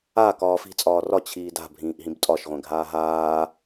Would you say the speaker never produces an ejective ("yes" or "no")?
no